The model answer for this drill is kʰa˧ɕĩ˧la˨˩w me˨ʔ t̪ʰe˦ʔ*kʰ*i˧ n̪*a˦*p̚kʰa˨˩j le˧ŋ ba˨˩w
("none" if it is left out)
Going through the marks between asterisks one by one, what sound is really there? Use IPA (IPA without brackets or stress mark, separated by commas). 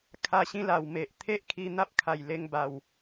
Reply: kʰ, a˦